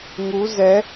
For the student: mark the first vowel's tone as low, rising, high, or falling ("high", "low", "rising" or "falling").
rising